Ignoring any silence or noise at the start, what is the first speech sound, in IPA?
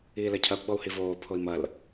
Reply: iː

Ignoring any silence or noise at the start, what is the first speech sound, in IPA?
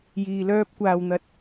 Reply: j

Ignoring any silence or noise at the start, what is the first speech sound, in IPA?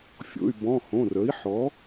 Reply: fʲ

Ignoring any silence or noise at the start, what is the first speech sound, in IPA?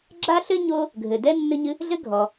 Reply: ɡ͡ǁ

